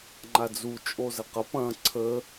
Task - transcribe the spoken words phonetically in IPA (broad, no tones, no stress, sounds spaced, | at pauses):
ŋ͡ǃ a d͡z u t͡ʃʼ o z ə q ɐ p ɐ̃ ǀʰ ə